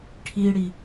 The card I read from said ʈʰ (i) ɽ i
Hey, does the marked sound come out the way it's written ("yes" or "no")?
yes